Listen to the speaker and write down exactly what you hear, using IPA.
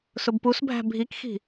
sʊbpusbʱæ̤ bʱikxi̤

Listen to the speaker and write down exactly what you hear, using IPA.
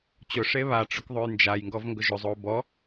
t͡ɕʊ ʂeβaʈ͡ʂʊk ðˤojnd͡ʒajŋɡɔv ŋɡʊʒʊzˤo bɔ

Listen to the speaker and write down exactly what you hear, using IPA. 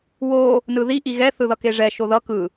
wo | nɯði ʔiɣɛ θɯðʌkeʐɛ ʃoðʌ kɯ

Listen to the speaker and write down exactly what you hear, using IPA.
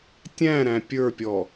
tʲæ̃ɾæ̃ pʲə˞pʲɔ

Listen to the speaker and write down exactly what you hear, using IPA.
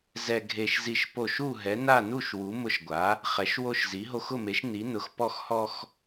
zɛ˦ɡʱe˦ʃzi˦ʃpo˥˨ʃ u˥˨ ɦɛ˨˥na˥˨nu˥˨ʃwu˨˥ mʊ˦ʃɡʷa˨˥ | χɛ˨˥ʃwo˦ʃzi˨˥ ɦo˦xʊ˥˨me˨˥ʃ ni˨˥nʊ˨˥x pɔ˦xhɔ˦x

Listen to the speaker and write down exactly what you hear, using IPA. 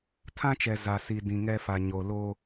tʰã˦t͡ʃɛ˨ za˨si˨ dĩ˨ŋɛ˦fa˨ ɲo˨ lo˦

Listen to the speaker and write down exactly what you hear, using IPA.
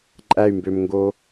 ǃʼæy̯mbømŋɡo

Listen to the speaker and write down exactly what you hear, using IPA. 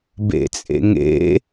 bḛt͡sʼḛŋḛ

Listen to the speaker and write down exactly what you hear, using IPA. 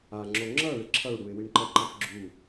aŋ͡ǁo ŋ͡ǁʌɭɪ ǁʰʌɭɽuɪ̯ wiɳǃʌǃap ɡ͡ǁu

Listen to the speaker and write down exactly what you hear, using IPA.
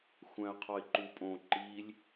xʷæ̃ə̯qʰɒɪ̯ǃupʼõ ǃilʲ

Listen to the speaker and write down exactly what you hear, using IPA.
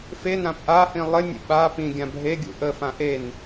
fenãp ʔahĩ lˠɪnʲə̰ ɓa pĩɡʲã bʱeɡʲṵ ʔəfã ʔen

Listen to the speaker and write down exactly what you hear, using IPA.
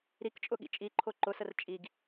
ɾikt͡ʃʼʊɠḭ t͡ʃʼiǃʰo ǃʊsər t͡ʃʼiɡ

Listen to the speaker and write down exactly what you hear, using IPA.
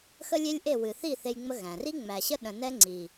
xə˦lʲe˦lʲʔe˦˨ wɨ˨θi˦˨ θe˦jŋ͡mə˦ ɣæ̃˨r i˦ŋ͡mæ˨ɕə˦ ɗə̃˨nɛ˦ ŋ͡ǀi˨

